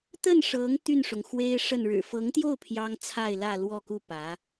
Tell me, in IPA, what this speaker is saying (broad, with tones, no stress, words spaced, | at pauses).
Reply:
t̪ə˥˩nʂɤ˧˥ŋ t̪y˥˩nʂʊ˩ŋxwe˥ɪ̯ʂə˥˩n ɻɻ̩˨˩fɤ˧˥ŋt̪jo˥˩ʊ̯ pʰjɑ˥ŋt͡sʰa˥˧ɪ̯lä˥˧lwɔ˥˧ ku˥˩pä˧˥